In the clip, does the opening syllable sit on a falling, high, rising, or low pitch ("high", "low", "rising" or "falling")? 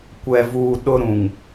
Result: low